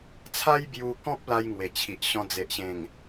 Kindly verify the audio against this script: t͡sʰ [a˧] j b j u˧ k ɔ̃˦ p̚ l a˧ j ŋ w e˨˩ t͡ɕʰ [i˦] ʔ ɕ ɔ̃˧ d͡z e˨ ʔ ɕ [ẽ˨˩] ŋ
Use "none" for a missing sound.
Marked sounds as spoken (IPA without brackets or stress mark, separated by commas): a˦, i˨, ẽ˨˩